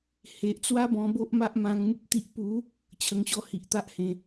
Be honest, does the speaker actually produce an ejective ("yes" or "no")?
no